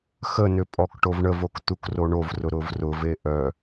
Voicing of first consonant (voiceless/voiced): voiceless